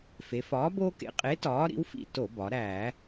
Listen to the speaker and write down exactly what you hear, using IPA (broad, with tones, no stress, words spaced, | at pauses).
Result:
fe˩˧fɒː˨˥ bo˦kḛ˨˥ qʼe˨˥ tɒː˨˥ɾḭ˨˥wfḭ˦˨ to˧˩˧bɒ˩˧ ɾæ˧˩˧